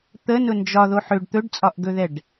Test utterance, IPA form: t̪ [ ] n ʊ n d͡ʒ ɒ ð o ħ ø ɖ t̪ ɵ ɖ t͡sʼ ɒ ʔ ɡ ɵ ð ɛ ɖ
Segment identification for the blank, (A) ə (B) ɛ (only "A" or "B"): A